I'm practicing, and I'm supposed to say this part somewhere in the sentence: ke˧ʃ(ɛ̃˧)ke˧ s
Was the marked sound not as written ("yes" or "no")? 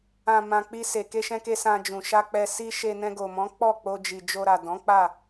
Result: no